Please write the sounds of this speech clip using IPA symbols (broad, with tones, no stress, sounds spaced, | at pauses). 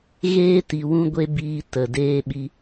ɣ eː˦ t i˨ w ũ˦ ɡʷ e˦ b iː˧ t ə˨ d eː˦ ɓ i˦